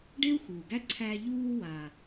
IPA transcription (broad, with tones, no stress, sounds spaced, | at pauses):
ɖ e˥ u̯ x uː˩ ɡ æ˥ ǀʰ æ˧ ʎ uː˧ w a˩